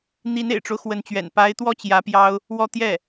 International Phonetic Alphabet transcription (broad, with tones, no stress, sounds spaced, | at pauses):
n̪ i˧˥ n ḛ˨˩ ɪ̯ ʈ͡ʂ o˦ ʊ̯ x w ə˧˥ n t͡ɕ ɥ ɛ̰˨˩ n p a˧˥ ɪ̯ t̪ w ɔ˥ t͡ɕ j ä˧˥ p j ɑ˥ ʊ̯ | w ɔ˥˧ t̪ j ɛ˥˩